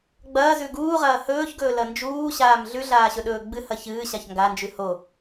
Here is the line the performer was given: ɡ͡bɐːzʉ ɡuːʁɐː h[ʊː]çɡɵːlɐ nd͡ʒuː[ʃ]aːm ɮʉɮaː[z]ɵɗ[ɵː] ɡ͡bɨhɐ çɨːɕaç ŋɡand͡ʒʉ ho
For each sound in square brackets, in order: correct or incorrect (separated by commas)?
incorrect, incorrect, incorrect, correct